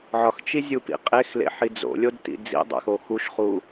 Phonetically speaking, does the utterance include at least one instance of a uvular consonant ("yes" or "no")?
yes